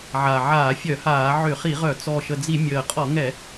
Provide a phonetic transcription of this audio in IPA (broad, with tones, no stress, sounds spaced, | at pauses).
ʕ a˨˩ ʕ aː˧˩˧ fʲ œ˧˩˧ h aː˧˩˧ ʕ ʏ˧˩˧ χ i˧˩˧ ʁ œ˧˩˧ t͡s ɔ˨˩ ʃ ə˨˩ d͡z i˧˩˧ mʲ əː˨˩ qʼ ɔ˧˩˧ ŋ ɛ˧˩˧